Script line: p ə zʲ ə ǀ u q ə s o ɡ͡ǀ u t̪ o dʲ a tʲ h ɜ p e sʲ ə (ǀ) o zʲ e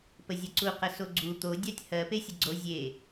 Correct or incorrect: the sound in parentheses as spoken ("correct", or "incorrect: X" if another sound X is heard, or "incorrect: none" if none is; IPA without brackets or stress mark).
incorrect: ɡ͡ǀ